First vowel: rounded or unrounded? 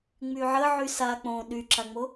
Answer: rounded